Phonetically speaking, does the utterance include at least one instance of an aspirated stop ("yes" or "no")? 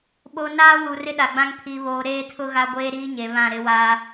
yes